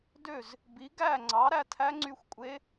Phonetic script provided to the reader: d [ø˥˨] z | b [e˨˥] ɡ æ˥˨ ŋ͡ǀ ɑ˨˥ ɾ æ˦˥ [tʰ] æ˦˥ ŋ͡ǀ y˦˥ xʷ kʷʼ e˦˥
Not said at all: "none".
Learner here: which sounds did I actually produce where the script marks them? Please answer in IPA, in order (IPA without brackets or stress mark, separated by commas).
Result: ø˥˨, i˨˥, tʰ